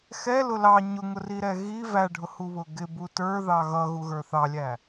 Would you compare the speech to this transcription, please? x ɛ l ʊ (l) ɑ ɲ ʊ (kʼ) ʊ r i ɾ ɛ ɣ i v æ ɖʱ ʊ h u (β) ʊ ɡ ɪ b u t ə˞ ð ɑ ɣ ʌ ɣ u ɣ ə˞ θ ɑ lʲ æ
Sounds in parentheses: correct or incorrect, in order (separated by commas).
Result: correct, incorrect, correct